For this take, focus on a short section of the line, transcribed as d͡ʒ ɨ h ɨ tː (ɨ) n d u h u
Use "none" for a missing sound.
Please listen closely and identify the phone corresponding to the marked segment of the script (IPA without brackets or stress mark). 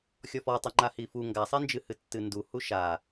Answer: ɨ